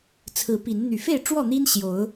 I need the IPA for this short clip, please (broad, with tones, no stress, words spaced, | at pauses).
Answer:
t͡sʰɹ̩˨˦pi˨˦n n̪y˨˩fe˥˨ɪ̯ʈ͡ʂwɔ˥˨n̪i˦n ɕjo˨˦ʊ̯